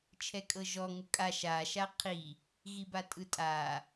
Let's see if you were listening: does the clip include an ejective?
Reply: yes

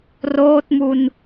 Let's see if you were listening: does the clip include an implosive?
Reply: no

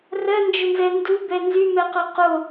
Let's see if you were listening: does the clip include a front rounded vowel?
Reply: yes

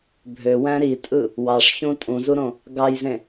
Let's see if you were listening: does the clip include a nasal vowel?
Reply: yes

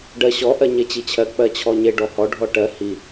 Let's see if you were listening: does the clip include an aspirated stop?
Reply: yes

